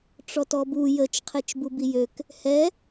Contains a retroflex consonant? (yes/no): yes